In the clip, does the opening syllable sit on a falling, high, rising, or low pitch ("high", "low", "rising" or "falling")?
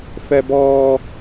high